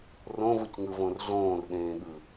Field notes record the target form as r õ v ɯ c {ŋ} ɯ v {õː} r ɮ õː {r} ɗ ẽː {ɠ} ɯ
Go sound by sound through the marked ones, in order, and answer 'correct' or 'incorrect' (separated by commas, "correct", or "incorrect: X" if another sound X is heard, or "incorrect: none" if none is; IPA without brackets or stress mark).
correct, incorrect: õ, correct, correct